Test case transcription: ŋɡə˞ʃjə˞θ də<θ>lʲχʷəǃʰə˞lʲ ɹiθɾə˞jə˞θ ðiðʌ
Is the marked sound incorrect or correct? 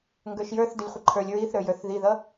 incorrect